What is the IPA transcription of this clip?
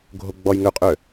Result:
ɡʱoɡ͡bɔjŋøqʼø

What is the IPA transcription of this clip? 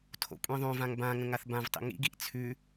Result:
tʰo̰kʷʼĩðˤõvãŋ bãŋə̃ ŋaθbãvtˤḭ ŋḭɡiʔ t͡sʰʉ

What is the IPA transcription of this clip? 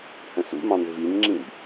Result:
hə̃sṵmɑ̃n vinŋ͡ǁĩb

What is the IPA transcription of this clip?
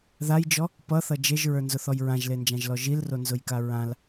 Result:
ðajd͡ʒɔ | pʌθʌ d͡ʒeʒɹə˞nzʊθɔj ɹãʒlend͡ʒãʒlɔ ʒilronzʊjka ɹãl

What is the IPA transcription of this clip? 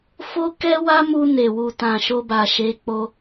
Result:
fo˦kɛ˦wa˦mu˧ ne˨wu˨tã˨ ʃo˧ba˨ʃe˨˦k͡po˧

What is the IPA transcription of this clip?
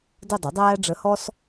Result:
də˥˧dˤʏ˩˥dˤæː˥ɖ͡ʐə˧˥ hɔ˥s

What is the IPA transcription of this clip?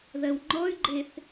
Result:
ðɜwŋ͡ǃɔy̯ɡ͡ǃeθ

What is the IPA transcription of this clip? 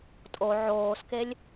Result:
tʼo ʕoːskelʲ

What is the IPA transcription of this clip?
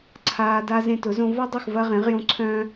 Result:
ǀʰaː˧da˦ zẽ˧tʊ˨˦zõ˧ vɔ˦dˤʊ˦˨x vɐ˧ʁẽ˨˦ʁjõ˧ ǀʰœ̃ː˦

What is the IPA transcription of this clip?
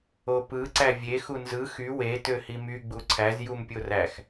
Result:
opɯ ǀævʲe xunzɯ xy we tøhimy ɡ͡buǀʰæz jumpʲoræx

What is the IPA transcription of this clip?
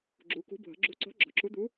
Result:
ɡ͡ǁu˩˧kṳ˨˥ bʱə̤˩˧ɡ͡ǁṳ˨˥ǀɔ̤˨˥ ɡ͡ǁɔ̤˩˧ǁu˨˥d̪u˨˥

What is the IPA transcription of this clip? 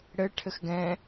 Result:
ɽɘ ʈʰɘxɡɛ̃

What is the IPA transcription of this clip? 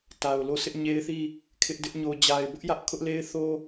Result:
ta˨ʊ̯lo˦˨ sʰɪ˦ʔɲe˦ɪ̯θi˦˨ | kʰɪ˦ʔdɪ˦ʔ ɲo˨d͡ʑa˨ɪ̯bʊ˦ʔjä˦ʔ kʰʊ˦ʔle˦ɪ̯θo˦

